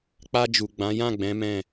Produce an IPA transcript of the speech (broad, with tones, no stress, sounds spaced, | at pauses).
k͡p a˧ d͡ʒ u˨ ɡ͡b ã˨˦ j ã˦˨ ɡ͡b ɛ̃˨˦ m ɛ̃˦˨